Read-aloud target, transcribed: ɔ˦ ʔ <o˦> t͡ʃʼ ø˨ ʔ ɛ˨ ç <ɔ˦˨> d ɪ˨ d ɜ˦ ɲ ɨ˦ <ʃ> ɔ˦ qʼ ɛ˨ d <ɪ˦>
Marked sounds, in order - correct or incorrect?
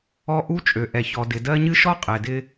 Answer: incorrect, incorrect, correct, correct

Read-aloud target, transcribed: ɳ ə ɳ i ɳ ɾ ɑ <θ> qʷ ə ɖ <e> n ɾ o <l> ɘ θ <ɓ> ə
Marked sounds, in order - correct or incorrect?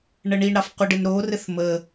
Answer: incorrect, incorrect, incorrect, incorrect

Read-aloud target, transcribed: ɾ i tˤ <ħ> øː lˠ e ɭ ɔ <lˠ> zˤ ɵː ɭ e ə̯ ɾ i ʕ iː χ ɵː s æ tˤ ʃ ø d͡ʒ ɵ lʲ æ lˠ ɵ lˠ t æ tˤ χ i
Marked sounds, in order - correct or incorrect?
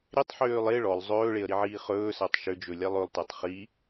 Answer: correct, correct

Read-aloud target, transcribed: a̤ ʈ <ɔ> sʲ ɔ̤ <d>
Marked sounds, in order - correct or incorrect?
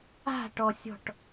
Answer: correct, incorrect

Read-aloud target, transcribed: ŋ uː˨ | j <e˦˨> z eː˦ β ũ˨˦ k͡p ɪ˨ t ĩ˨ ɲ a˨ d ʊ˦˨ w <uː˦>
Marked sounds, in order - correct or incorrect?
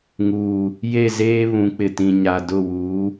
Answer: correct, incorrect

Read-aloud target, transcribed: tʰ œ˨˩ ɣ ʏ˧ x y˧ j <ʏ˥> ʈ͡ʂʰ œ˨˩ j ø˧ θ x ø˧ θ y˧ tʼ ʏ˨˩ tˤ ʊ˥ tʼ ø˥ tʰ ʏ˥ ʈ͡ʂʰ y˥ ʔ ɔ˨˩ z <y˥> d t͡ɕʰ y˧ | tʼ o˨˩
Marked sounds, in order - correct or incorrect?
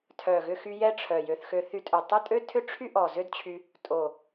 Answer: incorrect, incorrect

